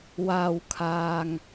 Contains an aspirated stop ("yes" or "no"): yes